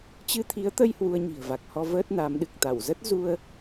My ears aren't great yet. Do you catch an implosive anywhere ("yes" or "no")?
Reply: yes